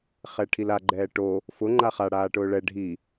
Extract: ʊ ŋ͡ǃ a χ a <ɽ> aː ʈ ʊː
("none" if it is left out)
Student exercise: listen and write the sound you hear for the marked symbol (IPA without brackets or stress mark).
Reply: ɽ